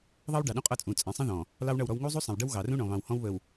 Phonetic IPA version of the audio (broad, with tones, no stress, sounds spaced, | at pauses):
ðˤ ɑ˦ w ɖ ɑ˨ ɗ ũ˦ qʼ ʌ˦˨ t͡sʼ ũ˨ t͡sʼ ɛ̃˨ sˤ ə̃˦ ð ɔ̃˨ | l ɑ˦ w ɳ ʌ˦˨ w ɾ ɔ˦ w ŋ u˦ zˤ u˦ sˤ ə̃˨ w ɖ ə˦ w ɣ ɑ˨ r ũ˦ ɳ ɔ̃˨ β ɑ̃˨ w h ɔ̃˦ w β ə˨ w